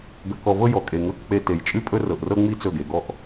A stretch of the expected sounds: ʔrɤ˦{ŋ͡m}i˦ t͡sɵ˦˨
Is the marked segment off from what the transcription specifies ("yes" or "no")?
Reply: no